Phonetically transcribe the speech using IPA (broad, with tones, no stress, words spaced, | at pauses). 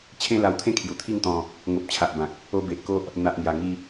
t͡ɕʰẽ˦la˧wt̪ʰẽ˦ kʰju˨˩t̪ʰi˥˧ŋt̪ɔ̃˧ | ŋo˨p̚t͡ɕʰa˨ʔbã˨k̚ | o˧be˨ʔko˦ʔ | n̪a˨ʔŋja˨˩ŋi˧